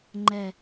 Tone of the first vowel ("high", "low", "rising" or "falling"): low